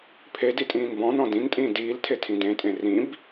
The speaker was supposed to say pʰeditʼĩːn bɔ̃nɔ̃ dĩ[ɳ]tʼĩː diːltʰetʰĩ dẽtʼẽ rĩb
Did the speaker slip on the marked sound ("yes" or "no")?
yes